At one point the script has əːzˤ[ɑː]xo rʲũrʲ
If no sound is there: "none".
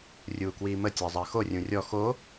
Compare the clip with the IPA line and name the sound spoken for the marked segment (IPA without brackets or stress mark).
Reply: əː